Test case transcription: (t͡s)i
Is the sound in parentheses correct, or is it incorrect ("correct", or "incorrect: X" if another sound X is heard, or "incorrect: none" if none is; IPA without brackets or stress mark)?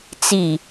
correct